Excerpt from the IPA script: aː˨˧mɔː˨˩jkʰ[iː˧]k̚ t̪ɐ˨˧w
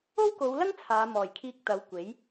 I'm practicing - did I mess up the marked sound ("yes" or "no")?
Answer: no